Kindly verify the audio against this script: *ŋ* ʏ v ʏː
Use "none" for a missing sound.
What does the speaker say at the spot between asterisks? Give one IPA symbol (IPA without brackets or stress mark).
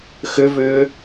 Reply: x